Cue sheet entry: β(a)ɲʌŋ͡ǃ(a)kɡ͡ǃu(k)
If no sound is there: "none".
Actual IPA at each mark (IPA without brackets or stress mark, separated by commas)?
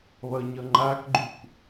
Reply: ʌ, a, k